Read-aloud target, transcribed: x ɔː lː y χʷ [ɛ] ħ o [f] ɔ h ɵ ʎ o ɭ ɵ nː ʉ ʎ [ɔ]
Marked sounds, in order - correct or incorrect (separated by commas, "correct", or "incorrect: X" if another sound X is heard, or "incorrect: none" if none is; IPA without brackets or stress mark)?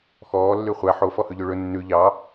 incorrect: æ, correct, incorrect: ɑ